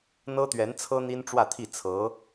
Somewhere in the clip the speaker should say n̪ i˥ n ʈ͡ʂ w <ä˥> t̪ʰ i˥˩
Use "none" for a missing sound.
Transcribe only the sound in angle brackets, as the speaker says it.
ä˥˧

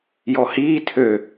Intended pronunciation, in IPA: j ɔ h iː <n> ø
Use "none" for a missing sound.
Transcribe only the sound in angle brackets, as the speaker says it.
tʰ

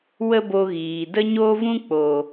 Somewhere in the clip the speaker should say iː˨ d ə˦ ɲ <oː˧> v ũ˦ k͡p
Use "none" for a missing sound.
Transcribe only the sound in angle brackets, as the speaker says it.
oː˦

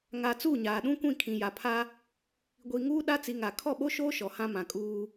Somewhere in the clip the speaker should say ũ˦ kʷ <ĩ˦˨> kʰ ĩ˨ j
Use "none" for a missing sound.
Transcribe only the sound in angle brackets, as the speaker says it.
ĩ˦˨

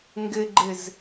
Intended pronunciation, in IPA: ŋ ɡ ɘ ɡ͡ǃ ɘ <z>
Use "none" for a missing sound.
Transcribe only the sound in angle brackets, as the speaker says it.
z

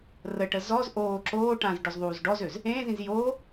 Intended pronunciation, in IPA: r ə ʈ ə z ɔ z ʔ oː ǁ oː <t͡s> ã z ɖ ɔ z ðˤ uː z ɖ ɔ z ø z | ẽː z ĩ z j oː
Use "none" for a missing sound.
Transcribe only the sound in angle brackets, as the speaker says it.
ʈ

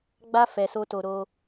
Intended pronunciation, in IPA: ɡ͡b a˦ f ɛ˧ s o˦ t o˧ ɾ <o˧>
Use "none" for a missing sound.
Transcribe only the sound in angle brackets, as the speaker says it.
o˧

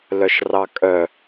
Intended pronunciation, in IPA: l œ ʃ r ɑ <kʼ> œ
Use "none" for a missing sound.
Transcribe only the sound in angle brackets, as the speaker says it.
kʼ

